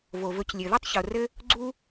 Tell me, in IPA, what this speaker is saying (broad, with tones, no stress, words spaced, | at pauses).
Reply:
vo˩vɵ˨c lʲɘ˩ ðɵ˥tˤço˩rɘ˦ | ɡ͡ǀu˦